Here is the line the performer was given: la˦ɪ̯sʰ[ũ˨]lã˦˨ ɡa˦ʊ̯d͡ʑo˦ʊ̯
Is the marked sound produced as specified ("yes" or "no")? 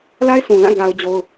yes